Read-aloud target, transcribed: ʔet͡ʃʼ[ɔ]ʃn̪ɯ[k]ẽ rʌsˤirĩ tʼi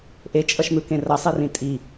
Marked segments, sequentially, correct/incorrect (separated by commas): incorrect, correct